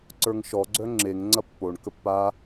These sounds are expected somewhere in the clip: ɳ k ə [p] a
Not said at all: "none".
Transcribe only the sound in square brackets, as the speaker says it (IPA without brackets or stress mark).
pː